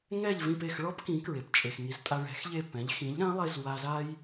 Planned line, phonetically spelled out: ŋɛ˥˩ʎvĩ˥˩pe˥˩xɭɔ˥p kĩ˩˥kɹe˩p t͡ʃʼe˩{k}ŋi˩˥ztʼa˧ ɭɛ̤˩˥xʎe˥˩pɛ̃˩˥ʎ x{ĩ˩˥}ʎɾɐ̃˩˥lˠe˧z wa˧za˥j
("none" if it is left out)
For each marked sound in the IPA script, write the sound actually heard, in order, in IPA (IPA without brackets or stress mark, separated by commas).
x, ĩ˩˥